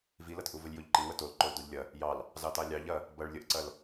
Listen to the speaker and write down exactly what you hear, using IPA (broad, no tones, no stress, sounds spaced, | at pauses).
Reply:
v i l ɐ t ʔ u v ə lʲ j o ʎ ǃ i w ə t o l ǃ o l d o ʎ lʲ ɐ | j ɑ l | z ɑ t ɑ lʲ ɑ ʎ ɐ | b ɐ ɭ lʲ ə ʔ ǀ ɐ l